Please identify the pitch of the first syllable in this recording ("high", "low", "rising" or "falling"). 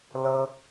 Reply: high